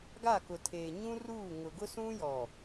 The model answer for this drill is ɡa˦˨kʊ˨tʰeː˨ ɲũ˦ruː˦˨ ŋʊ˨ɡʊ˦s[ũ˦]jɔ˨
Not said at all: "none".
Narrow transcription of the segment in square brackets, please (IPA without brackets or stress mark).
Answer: ũ˦